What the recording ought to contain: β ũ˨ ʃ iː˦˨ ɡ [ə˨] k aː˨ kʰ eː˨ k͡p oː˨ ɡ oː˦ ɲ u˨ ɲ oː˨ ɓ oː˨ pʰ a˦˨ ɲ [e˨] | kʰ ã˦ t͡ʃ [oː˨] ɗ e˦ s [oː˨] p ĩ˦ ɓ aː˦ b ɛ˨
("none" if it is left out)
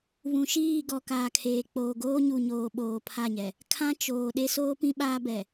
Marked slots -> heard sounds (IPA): ɔ˨, ɛ˨, oː˨, oː˦

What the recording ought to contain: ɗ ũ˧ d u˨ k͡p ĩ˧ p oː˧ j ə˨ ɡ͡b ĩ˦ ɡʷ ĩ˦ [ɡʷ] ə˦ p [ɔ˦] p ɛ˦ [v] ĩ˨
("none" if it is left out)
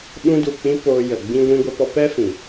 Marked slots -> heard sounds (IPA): ɡʷ, ɔ˦, f

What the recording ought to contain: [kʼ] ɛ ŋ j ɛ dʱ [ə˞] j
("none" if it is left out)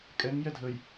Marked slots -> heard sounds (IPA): kʼ, ə

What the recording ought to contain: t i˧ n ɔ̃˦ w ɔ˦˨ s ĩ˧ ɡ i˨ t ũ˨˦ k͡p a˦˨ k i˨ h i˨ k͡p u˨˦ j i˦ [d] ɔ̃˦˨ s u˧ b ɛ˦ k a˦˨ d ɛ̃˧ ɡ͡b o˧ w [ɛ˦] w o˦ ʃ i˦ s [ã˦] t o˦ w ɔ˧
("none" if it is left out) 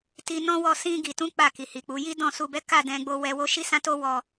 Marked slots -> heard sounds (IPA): d, ɛ˧, ã˦

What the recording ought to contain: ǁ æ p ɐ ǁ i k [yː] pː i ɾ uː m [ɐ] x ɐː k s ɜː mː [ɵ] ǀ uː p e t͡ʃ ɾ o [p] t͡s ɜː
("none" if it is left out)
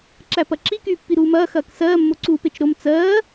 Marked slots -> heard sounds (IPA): yː, ɐː, o, m

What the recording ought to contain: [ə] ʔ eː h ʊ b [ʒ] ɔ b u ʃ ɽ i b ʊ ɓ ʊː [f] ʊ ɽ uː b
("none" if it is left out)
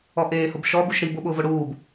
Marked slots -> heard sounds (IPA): ɔ, ʃ, v

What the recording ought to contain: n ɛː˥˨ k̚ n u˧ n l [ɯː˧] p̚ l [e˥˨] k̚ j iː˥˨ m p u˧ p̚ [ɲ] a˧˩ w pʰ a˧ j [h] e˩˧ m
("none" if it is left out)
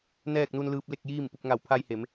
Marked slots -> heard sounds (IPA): ɯː˧, e˥˨, ŋ, h

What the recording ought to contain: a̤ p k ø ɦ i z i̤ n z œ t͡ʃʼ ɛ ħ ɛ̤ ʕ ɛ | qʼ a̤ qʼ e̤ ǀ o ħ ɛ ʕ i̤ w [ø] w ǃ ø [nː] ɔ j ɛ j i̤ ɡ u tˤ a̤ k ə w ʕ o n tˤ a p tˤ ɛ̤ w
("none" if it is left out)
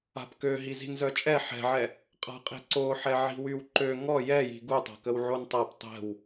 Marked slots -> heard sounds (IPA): y, ŋ

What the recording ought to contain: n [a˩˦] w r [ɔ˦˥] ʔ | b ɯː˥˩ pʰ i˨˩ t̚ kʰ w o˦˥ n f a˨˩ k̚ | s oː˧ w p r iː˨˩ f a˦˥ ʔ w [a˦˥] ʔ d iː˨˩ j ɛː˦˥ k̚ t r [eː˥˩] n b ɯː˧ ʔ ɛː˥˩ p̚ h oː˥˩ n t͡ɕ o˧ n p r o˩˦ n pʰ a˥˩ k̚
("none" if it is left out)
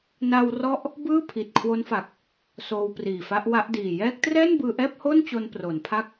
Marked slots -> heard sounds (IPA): a˧, ɔ˦˥, a˦˥, ɛː˥˩

